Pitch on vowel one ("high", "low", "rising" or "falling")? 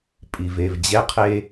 low